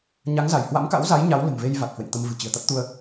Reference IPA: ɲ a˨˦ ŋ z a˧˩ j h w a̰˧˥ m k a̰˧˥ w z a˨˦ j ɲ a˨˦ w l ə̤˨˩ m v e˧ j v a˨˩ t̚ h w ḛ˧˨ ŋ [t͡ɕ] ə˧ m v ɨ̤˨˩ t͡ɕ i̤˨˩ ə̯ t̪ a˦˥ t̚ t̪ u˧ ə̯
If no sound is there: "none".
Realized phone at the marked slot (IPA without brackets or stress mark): t̪